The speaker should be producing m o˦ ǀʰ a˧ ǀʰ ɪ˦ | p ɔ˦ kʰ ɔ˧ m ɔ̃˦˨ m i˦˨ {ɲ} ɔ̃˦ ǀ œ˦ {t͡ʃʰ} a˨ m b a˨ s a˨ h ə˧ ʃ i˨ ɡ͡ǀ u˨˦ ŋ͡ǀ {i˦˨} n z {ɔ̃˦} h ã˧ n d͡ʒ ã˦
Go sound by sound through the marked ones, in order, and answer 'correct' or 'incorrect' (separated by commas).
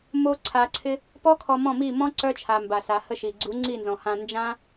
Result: incorrect, correct, correct, incorrect